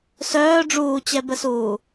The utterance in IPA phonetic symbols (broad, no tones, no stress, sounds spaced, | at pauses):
s œː ɖ͡ʐ uː t͡ɕ ɛ b ə s uː